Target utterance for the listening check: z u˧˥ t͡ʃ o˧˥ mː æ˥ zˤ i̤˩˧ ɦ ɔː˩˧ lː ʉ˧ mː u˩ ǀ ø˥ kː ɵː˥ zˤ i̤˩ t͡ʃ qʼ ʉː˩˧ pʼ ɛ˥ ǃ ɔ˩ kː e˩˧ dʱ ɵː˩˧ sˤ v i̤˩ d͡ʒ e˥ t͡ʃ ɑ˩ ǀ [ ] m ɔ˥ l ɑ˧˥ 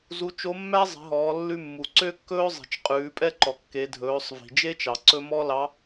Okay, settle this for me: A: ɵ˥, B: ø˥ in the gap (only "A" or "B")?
A